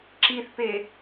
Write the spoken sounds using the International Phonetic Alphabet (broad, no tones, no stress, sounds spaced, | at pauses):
ǁ i θ p e